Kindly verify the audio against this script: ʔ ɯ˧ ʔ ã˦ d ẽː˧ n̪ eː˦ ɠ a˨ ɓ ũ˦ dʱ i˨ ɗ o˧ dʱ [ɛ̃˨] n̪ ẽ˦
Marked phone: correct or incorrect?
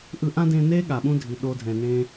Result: correct